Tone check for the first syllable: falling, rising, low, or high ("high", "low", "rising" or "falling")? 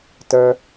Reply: low